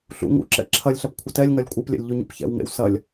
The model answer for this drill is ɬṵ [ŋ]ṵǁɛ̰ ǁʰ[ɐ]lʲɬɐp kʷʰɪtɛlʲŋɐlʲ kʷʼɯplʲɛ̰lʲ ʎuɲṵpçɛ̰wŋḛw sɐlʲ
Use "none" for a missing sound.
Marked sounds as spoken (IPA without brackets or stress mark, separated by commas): ŋ, ɐ